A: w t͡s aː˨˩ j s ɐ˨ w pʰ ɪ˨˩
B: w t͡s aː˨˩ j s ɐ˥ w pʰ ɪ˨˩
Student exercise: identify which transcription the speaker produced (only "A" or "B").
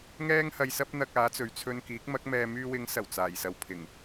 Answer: A